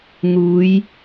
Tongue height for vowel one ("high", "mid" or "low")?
high